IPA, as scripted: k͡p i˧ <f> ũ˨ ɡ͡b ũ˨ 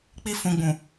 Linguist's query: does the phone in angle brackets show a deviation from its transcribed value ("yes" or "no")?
no